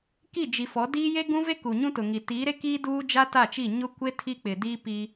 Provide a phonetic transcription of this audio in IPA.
k i˦˨ d͡ʒ i˨ f ɔ˨˦ d iː˦ j e˦ ɡ ũ˦ v e˦ k u˨ ɲ ũ˦ t ʊ˨ ŋ i˨ t iː˨˦ ɾ e˦ k iː˦ d uː˦ d͡ʒ a˦ t a˦˨ t͡ʃ i˦˨ ɲ ʊ˦ kʷ e˦ tʰ i˦ k͡p ɪ˨ d iː˦ p i˦

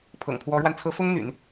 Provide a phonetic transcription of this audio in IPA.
pʰ ɤ̰˨˩ ŋ pʰ w ɔ˧˥ ɻ w a˧ n t͡sʰ ɤ˧˥ f ʊ˥ ŋ n̪ y̰˨˩˦ n

